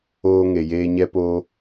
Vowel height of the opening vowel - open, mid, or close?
mid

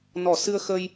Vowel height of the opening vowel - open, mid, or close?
mid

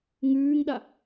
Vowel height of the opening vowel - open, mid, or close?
close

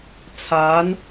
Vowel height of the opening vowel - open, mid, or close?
open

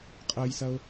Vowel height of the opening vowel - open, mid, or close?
open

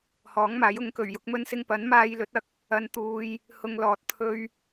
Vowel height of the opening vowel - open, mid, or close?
mid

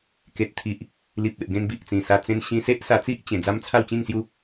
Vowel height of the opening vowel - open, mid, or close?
mid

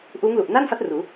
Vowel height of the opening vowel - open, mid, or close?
close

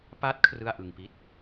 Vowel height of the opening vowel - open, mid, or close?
open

